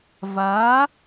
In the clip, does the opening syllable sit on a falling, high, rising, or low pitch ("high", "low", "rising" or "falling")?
rising